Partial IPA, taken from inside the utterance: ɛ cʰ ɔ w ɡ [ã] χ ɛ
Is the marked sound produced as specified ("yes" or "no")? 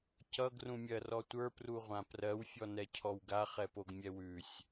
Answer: no